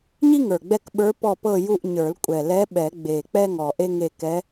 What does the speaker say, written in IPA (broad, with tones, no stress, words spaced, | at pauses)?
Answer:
ɲi˥ŋə˞˨˩ɡ͡bɛ˦˨k ɓə˞˧˥pɔ˦˨pɤ˦˨ju˦˨ʔ ɲə˞˨˩˦lkʷʼɛ˨˩lɛ˧˥ ɓɛ˨˩˦ɡ͡be˨˩ k͡pɛ˥ŋɔ˨˩ʔe˥ŋe˦˨ kɛ˧˥